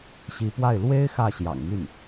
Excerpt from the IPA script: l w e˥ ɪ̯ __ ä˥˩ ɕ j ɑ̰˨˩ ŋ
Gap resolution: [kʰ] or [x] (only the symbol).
x